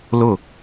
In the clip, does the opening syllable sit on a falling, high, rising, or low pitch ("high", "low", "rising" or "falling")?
falling